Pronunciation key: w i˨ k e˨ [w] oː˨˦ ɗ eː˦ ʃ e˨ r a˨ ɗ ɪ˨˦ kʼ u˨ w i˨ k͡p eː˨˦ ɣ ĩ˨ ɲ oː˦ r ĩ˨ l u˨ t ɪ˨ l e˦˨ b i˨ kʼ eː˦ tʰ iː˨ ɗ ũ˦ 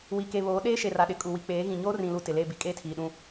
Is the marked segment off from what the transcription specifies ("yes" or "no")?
yes